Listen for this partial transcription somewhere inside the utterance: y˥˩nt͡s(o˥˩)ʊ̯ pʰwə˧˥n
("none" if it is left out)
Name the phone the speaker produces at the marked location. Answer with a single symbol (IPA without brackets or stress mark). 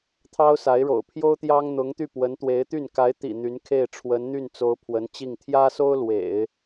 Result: o˧˥